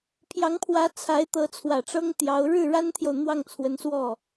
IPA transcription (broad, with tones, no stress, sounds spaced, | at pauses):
pʰ j ɑ˧˥ ŋ pʰ w ä˧˥ t͡sʰ a˧˥ ɪ̯ t̪ ɤ˧˥ t͡sʰ w ä˨˩ ʈ͡ʂ ɤ˥ ŋ t̪ j ɑ˧˥ ʊ̯ ɻ ɻ̩˥˩ ɻ a˥ n t̪ʰ j o˨ ʊ̯ n̪ w ɑ˥˩ ŋ t͡sʰ w ə˧˥ n s w ɔ˥˩